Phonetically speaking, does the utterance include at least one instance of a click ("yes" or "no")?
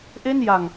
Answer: no